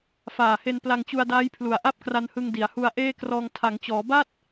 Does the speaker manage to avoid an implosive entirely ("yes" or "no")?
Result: yes